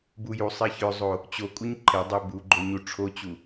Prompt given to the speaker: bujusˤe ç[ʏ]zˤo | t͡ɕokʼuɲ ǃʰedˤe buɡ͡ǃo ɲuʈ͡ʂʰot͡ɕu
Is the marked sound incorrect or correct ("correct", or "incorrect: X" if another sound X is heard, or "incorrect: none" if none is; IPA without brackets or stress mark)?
correct